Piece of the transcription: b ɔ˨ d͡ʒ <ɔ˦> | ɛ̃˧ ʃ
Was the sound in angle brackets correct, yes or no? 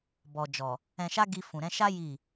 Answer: no